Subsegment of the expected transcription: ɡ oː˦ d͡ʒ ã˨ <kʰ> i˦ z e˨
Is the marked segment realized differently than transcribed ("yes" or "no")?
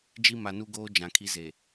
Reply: no